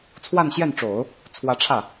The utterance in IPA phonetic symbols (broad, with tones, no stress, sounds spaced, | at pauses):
t͡sʰ w a˥˧ n ɕ j ɛ˥˩ n ʈ͡ʂ o˨˩˦ ʊ̯ | t͡sʰ w ä˧˥ ʈ͡ʂʰ ä˥˩